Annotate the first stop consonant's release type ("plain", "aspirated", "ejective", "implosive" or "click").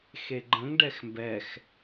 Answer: click